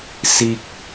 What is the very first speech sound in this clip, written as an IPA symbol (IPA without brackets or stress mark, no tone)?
s